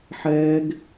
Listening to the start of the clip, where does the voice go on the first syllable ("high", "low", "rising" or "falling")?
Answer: high